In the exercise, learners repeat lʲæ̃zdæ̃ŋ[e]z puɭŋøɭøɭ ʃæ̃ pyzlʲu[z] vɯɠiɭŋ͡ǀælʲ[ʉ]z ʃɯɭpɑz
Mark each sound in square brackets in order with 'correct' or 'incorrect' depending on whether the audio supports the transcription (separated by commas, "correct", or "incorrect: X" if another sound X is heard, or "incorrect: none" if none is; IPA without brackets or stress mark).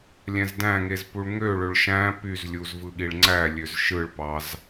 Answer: correct, correct, incorrect: ø